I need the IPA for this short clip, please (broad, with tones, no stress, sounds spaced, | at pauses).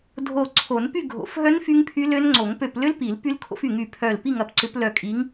dʱ o˧˩ ǀʰ o˨˩˦ n p y˥˨ ɡʱ o̰˨˩˦ f ɦ œ˦˥ n f y˦˥ ŋ pʰ y˦˥ l ø˦˥ n ŋ͡ǀ o˨˩˦ ŋ p ø˧˩ p l ʏ˦˥ l p i˨˩˦ l p y˦˥ l kʰ o̰˦˥ f y˧˩ ŋ y˧˩ pʰ œ˧˩ l p i˥˨ ŋ ɐ˨˦ p ǀ ʏ˨˦ p l œ˧˩ kʼ i˨˦ ŋ